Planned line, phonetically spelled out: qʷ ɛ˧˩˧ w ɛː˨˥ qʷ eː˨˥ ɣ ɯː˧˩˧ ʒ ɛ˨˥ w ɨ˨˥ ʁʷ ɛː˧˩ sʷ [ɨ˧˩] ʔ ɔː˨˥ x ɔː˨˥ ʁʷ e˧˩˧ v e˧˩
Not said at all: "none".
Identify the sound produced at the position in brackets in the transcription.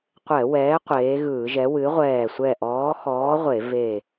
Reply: ɛ˧˩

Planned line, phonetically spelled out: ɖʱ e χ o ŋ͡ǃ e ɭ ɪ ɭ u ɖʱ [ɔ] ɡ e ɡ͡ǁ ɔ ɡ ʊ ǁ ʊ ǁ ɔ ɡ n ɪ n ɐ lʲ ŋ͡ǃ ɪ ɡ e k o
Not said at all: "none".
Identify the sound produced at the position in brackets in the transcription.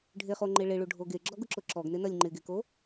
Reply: o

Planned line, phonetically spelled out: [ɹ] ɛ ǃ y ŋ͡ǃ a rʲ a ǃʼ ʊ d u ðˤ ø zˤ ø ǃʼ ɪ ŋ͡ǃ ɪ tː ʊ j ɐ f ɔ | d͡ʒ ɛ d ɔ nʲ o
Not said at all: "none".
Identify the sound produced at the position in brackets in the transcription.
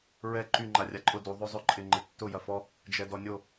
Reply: ɹ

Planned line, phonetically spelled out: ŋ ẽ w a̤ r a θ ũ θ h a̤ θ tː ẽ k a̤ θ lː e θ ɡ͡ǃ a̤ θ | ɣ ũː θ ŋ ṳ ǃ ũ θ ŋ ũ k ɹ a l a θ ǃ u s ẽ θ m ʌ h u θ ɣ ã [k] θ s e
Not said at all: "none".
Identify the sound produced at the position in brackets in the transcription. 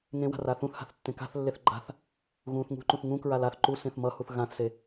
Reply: none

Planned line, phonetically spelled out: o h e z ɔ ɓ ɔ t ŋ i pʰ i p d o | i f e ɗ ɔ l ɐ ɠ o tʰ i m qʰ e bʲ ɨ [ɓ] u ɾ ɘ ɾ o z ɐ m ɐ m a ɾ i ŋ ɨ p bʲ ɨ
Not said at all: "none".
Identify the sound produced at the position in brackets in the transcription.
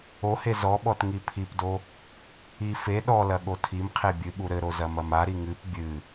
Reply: ɓ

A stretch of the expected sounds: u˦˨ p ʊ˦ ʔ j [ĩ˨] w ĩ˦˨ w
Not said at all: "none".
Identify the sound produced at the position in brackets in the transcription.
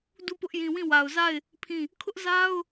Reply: ĩ˨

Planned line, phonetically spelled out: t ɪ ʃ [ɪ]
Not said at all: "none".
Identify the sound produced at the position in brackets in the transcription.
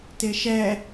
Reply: ɛ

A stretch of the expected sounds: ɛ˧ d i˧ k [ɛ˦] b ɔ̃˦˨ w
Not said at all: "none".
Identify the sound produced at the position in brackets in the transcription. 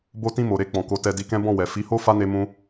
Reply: ɛ̃˦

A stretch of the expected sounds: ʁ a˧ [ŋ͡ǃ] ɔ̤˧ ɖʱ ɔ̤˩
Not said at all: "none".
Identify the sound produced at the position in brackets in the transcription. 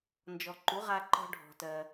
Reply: ǃ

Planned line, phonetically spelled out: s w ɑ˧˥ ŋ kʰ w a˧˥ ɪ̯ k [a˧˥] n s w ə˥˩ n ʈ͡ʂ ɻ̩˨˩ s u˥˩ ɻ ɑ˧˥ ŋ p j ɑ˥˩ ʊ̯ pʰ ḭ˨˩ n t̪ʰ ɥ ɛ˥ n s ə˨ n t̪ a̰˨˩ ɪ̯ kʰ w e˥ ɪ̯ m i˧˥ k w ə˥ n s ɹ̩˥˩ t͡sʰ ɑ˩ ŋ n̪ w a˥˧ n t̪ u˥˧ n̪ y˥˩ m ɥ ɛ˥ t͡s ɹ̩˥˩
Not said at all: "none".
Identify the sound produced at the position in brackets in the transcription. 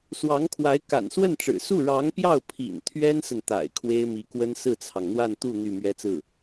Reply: a̰˨˩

